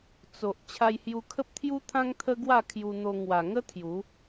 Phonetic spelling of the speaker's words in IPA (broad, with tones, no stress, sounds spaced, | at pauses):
t͡s o˨ ʔ t͡ɕʰ a˧ j h j u˧ kʰ ə˦ p̚ t̪ʰ j u˦ t̪ʰ ã˦ ŋ t̪ʰ ə˦ ɡ w a˥˧ kʰ j u˧ n̪ o˧ ŋ w a˨˩ ŋ ə˦ t̪ʰ j u˨˦